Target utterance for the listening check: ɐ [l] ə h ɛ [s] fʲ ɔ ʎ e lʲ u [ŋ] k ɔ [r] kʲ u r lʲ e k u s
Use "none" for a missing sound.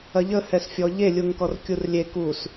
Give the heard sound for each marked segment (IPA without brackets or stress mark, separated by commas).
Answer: ʎ, s, ŋ, r